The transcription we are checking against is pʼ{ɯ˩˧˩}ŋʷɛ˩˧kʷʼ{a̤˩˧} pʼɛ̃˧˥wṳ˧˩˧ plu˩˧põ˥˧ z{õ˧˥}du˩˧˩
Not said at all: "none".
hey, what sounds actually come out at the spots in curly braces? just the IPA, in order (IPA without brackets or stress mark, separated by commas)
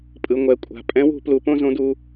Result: ɯ˩˧˩, a̤˩˧˩, õ˧˥